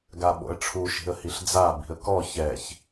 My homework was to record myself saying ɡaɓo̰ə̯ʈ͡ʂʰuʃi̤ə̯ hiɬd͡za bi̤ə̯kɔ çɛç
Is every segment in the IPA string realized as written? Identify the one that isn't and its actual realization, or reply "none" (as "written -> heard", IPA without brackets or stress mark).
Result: none